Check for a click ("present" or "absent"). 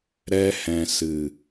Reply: absent